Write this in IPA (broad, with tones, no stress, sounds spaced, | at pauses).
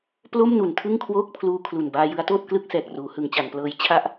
p l o˥˩ m n u˩˦ n tʰ ɯ˥˩ ŋ kʰ w oː˥˩ k̚ pʰ l uː˧ kʰ l u˨˩ n b aː˧ j ɯ˦˥ a̯ t oː˥˩ t̚ k l ɯ˥˩ k̚ s ɛː˨˩ k̚ r uː˩˦ h ɯ˩˦ ŋ t͡ɕ a˩˦ n p l ɤː˦˥ j t͡ɕʰ a˥˩ ʔ